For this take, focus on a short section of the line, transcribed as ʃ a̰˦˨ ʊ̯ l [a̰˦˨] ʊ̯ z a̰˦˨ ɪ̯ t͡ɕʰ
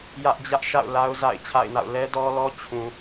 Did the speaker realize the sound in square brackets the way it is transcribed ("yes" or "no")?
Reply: no